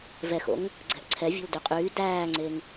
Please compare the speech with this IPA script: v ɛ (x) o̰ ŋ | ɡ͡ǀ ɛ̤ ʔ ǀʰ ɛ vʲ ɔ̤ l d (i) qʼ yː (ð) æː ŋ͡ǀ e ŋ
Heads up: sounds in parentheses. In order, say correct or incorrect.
correct, incorrect, incorrect

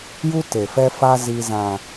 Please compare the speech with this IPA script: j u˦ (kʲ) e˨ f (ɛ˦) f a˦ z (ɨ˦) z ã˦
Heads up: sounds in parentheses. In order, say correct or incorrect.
incorrect, correct, incorrect

